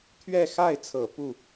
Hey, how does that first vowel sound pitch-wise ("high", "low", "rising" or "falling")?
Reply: falling